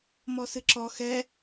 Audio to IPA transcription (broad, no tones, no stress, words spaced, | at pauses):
mɔsɨǁɔ xɛ